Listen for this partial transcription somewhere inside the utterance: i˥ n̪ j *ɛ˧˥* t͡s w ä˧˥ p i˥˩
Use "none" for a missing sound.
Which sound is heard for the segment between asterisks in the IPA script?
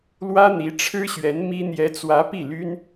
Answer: ɛ˧˥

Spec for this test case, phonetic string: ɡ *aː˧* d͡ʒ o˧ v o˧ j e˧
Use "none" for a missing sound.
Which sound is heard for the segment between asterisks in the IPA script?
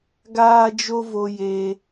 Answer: aː˧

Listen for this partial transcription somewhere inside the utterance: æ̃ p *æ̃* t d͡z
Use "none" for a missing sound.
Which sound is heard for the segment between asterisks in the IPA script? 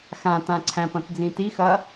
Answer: ɐ̃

